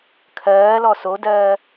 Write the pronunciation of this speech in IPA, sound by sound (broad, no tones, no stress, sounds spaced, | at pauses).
kʰ ɜː l ɔ s o d ɜː